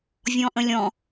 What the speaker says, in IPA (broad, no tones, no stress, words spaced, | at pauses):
vʲɔ̃ʔə̃lʲɔ̃